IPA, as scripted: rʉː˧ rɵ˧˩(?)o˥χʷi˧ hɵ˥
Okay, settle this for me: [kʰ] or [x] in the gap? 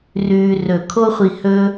kʰ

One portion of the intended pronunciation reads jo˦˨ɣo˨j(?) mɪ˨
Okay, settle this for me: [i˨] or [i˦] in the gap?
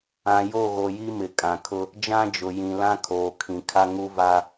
i˦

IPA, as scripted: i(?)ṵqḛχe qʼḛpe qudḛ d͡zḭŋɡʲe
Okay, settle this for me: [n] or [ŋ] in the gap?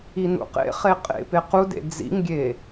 n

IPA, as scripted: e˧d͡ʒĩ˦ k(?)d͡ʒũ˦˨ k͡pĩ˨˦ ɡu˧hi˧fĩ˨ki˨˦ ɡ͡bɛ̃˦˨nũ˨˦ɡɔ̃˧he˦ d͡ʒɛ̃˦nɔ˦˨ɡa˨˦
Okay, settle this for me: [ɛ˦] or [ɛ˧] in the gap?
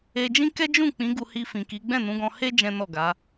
ɛ˦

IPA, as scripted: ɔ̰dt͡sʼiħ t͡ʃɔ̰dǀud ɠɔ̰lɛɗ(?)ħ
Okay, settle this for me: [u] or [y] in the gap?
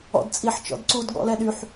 y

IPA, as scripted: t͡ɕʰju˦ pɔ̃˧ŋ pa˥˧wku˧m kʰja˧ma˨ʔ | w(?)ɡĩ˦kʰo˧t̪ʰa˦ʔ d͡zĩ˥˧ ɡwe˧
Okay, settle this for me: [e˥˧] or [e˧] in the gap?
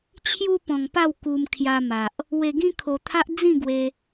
e˧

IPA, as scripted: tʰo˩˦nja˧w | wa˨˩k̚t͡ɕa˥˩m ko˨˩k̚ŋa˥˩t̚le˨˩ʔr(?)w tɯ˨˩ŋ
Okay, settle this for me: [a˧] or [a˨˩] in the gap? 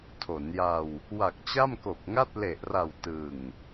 a˨˩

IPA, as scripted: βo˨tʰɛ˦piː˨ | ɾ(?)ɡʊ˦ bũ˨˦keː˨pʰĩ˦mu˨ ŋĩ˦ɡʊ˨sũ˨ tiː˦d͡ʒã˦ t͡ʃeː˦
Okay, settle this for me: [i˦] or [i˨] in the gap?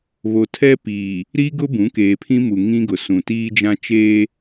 i˦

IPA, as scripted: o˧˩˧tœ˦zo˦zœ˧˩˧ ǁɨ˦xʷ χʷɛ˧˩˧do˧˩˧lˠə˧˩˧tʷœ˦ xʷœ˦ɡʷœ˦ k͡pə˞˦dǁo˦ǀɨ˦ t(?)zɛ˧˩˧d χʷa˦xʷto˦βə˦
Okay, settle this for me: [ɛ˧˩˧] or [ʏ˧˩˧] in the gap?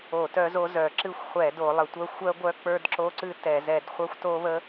ɛ˧˩˧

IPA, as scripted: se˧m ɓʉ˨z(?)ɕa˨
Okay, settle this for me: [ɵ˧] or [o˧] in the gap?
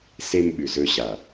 ɵ˧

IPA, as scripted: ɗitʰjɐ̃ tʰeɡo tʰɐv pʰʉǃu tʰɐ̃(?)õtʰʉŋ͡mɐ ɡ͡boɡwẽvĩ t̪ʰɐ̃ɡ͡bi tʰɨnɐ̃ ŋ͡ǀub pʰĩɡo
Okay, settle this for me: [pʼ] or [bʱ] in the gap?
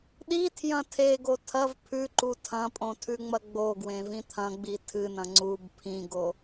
pʼ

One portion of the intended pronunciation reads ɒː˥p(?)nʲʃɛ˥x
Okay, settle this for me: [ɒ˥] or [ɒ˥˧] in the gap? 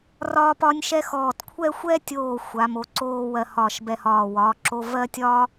ɒ˥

